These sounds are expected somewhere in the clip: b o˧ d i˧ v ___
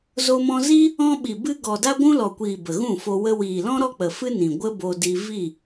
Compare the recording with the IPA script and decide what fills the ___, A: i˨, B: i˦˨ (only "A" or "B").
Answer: B